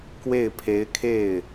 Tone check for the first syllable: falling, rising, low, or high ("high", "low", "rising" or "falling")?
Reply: falling